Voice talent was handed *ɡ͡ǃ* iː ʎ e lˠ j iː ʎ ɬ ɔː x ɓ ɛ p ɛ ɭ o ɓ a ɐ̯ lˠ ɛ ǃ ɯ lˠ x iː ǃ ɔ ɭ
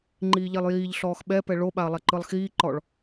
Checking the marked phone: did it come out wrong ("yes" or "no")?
yes